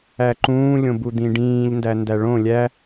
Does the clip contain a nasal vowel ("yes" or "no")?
yes